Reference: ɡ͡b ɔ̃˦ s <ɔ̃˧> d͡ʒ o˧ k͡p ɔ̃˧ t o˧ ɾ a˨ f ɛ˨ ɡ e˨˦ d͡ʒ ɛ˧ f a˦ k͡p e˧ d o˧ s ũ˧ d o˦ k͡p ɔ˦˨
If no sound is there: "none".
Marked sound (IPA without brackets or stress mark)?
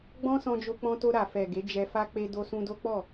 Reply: ɔ̃˧